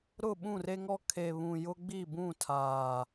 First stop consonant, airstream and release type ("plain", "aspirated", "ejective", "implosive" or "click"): implosive